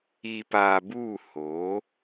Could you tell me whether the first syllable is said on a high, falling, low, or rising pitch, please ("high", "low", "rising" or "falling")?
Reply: low